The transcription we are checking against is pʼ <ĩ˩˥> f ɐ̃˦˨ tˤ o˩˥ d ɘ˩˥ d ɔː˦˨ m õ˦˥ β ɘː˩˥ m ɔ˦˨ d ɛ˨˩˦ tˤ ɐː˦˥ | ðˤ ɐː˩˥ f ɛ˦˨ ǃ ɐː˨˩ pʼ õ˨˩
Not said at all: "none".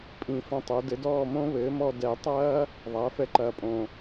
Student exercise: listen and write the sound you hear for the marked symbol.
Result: ĩ˨˩˦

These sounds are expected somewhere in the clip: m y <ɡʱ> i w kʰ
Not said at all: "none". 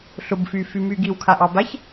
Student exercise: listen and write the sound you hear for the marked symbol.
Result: ɡ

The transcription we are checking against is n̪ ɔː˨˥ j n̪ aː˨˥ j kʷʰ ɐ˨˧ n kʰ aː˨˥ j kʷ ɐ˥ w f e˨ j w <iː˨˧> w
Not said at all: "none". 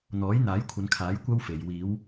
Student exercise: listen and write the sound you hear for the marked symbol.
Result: iː˨˧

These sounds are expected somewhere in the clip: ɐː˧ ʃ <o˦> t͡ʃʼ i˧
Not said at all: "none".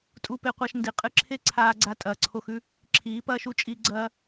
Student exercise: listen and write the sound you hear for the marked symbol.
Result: u˦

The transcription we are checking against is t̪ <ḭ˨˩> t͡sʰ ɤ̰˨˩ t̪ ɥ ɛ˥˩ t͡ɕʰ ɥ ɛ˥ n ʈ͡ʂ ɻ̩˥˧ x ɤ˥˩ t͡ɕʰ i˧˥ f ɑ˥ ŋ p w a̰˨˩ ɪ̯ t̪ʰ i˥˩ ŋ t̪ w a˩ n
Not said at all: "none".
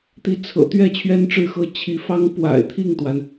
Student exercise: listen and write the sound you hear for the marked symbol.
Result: i˧˥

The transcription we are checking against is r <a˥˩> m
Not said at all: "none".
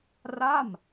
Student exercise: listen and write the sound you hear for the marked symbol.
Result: a˥˩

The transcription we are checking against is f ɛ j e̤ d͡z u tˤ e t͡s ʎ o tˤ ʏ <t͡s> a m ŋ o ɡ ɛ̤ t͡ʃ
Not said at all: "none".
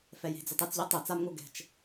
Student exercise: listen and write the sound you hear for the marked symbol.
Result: t͡s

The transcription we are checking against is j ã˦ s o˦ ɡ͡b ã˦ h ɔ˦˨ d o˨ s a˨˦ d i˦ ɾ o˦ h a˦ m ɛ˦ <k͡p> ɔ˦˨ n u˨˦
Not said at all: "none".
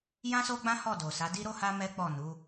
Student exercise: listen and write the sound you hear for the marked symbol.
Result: k͡p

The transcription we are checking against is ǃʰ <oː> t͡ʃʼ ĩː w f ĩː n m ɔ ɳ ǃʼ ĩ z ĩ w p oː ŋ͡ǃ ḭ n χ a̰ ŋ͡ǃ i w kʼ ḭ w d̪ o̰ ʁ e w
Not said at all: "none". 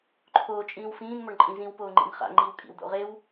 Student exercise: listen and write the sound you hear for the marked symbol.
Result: oː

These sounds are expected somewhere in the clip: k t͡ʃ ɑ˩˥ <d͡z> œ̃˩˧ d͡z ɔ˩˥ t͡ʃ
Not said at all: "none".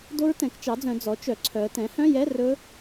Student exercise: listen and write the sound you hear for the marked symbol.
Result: d͡z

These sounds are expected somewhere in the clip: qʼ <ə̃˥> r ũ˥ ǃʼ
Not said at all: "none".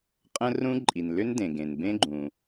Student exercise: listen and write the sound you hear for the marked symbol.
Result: ə̃˥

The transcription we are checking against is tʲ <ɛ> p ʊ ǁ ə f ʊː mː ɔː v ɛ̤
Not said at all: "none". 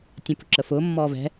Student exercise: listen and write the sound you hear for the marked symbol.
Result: ɛ̃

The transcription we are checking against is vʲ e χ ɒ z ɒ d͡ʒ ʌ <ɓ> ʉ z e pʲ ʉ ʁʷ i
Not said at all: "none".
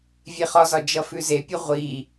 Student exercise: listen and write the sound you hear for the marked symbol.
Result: f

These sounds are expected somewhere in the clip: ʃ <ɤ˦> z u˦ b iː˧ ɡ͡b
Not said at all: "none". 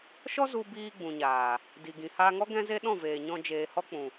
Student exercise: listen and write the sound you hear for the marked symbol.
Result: ɔ˦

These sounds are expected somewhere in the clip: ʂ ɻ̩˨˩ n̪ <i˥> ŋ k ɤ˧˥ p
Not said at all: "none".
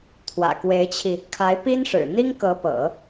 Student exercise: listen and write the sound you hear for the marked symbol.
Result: i˥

